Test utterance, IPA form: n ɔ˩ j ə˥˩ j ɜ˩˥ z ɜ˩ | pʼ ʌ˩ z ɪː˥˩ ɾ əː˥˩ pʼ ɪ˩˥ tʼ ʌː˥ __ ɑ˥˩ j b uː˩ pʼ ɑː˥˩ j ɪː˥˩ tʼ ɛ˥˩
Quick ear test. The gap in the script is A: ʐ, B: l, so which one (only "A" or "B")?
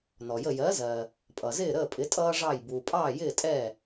A